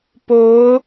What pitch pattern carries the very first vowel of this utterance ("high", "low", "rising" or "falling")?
rising